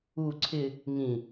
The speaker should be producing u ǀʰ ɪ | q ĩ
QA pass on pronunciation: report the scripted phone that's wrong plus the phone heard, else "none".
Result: q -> ŋ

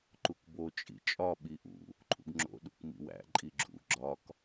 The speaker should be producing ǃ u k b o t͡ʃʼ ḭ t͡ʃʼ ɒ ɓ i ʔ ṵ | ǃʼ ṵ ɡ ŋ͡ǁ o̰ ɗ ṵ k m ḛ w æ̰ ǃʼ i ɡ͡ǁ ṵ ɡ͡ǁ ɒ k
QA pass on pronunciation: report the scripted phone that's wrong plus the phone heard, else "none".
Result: ḛ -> ḭ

